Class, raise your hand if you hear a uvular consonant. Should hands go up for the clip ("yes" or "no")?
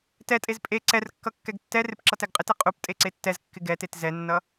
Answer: yes